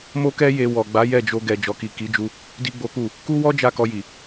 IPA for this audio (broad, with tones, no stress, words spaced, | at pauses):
mo˦kɛ˦je˧ wɔ˨ɡ͡ba˨˦ jɛ˦˨d͡ʒo˧ɡɛ˨ d͡ʒɔ˨ki˨ki˨˦d͡ʒu˧ | di˦ɡ͡bo˦ku˦˨ | ku˦wɔ˦ d͡ʒa˦˨kɔ˧ji˨